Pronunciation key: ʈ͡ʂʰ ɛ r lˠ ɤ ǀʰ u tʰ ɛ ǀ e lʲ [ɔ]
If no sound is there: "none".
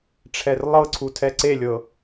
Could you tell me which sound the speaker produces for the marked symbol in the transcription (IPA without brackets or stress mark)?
ɤ